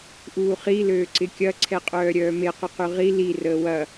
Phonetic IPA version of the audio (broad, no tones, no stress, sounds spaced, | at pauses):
ʔ uː χ i l øː ǀ ɪ kʲ ɐ ǀʰ ɛ qʼ œː ɾʲ œː m e q ʏ q y ʁ i l i r əː w ɐ